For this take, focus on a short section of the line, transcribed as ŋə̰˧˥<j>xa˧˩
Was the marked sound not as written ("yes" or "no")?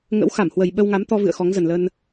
yes